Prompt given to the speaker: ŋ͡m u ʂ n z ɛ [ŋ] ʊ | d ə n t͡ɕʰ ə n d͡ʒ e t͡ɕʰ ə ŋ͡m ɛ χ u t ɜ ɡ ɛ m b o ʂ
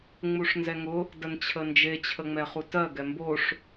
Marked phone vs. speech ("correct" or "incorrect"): correct